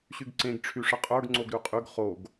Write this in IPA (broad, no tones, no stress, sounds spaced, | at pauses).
ɕ y ɡ ǀ ẽ ɡ ʈ͡ʂʰ y ʂ ə qʼ ə˞ ɡ ŋ͡ǀ o ɡ ɾ ʉ qʼ ʉ ɡ χ o ɡ